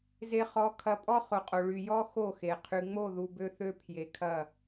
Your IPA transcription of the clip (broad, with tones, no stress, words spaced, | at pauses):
ze˧χɔ˨˦ kʰɐ˨˦pʼɔ˦ χo˨qʼo˨ ɭy˨jɔ˦ xo˦˨xe˨ qʰy˨ŋ͡mo˦˨ ðu˧bø˦θø˦ pʰje˨kʰɐ˦˨